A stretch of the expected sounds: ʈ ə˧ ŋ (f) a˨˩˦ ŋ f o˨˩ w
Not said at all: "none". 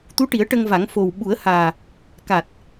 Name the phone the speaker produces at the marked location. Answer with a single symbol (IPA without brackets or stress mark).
v